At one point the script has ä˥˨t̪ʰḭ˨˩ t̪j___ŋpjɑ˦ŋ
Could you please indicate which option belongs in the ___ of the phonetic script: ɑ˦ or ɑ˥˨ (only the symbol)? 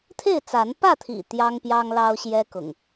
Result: ɑ˦